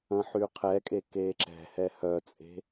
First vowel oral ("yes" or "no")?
no